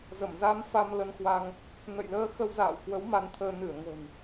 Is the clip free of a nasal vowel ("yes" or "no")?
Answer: yes